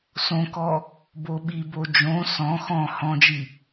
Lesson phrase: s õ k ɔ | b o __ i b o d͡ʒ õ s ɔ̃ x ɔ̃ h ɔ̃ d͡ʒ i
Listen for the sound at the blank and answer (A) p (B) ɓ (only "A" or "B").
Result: B